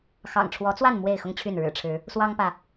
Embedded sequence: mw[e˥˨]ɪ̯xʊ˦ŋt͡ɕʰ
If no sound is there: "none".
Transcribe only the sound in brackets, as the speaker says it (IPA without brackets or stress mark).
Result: e˥˨